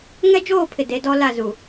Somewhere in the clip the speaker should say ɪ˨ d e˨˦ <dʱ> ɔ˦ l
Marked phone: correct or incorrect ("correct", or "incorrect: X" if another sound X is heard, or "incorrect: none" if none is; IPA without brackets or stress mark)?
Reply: incorrect: d